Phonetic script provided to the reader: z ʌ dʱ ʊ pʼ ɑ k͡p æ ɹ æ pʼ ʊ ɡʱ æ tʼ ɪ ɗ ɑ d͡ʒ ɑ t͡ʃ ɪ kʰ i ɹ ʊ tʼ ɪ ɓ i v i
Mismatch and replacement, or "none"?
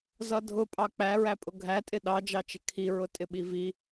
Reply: none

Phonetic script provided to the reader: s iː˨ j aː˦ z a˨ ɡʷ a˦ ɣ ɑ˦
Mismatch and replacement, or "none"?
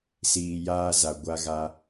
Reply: ɑ˦ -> a˦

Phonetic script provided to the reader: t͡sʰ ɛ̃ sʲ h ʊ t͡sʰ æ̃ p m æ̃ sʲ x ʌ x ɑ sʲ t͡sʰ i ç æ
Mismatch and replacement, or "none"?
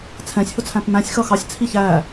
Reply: none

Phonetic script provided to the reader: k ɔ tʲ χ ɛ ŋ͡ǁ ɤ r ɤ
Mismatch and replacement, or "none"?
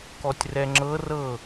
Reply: χ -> r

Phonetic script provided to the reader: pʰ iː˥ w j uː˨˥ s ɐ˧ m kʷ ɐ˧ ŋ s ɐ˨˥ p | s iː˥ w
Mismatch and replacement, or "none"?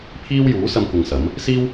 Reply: p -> m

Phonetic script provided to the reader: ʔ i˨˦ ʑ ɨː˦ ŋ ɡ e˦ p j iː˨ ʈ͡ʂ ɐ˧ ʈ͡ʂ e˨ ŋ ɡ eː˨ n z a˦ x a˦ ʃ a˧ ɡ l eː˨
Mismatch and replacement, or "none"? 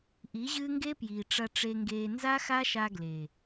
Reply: none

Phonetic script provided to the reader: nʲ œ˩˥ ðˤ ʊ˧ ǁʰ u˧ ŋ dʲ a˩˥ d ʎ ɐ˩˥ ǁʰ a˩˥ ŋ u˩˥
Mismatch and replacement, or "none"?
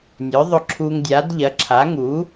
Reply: none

